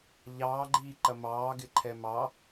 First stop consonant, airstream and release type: click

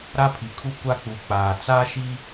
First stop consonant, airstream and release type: aspirated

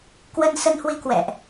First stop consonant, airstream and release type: plain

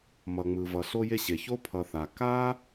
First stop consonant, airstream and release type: aspirated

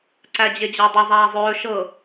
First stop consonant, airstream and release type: click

